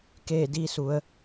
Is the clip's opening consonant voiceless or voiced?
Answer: voiceless